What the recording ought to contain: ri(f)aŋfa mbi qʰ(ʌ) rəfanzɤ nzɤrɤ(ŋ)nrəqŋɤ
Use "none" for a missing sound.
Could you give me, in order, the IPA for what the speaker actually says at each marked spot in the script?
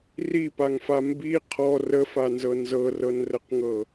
p, ɔ, none

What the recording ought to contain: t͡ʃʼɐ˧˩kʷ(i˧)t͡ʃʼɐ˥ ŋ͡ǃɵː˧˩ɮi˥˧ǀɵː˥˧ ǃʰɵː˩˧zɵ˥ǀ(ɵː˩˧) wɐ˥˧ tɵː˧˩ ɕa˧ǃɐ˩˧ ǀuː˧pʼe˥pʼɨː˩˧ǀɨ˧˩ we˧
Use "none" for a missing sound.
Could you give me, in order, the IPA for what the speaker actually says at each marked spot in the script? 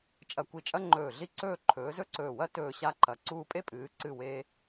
i˧, ɵː˧˩

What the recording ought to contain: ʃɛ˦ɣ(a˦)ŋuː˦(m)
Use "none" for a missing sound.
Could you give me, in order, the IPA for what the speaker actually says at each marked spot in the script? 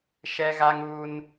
a˦, n

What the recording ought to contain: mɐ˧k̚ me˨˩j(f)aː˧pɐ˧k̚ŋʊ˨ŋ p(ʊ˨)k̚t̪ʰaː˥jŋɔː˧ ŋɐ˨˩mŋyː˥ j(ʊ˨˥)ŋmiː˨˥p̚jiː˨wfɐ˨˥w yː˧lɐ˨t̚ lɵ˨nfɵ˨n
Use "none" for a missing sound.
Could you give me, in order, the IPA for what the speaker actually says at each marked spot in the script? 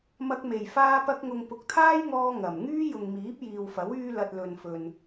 f, ʊ˨, ʊ˨

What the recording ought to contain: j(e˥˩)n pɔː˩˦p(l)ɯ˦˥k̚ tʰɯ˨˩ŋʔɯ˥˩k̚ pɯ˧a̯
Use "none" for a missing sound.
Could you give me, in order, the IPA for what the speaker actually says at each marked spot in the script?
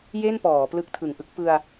e˥˩, l

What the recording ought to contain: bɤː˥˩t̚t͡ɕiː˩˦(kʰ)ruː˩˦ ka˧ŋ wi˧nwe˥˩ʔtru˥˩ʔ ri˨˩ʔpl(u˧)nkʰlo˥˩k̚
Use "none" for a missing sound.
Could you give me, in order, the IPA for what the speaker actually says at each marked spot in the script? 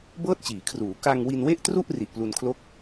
kʰ, u˧

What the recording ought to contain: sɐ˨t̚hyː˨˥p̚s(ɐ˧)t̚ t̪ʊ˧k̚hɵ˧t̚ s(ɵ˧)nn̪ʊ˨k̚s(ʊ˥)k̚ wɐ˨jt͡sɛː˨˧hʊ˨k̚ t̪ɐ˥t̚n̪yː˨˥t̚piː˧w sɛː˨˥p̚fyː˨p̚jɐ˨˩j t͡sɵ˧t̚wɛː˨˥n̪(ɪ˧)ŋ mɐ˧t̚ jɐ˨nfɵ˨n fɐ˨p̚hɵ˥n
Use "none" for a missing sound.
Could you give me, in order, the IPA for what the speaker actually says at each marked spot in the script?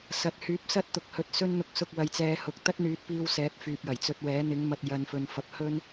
ɐ˥, ɵ˧, ʊ˨, ɪ˨˥

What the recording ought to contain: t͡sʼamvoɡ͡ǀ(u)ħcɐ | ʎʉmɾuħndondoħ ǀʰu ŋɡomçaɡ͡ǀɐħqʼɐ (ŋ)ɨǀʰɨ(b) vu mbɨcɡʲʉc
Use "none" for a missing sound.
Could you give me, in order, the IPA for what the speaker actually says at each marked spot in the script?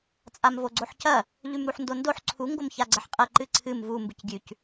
o, ǃ, m

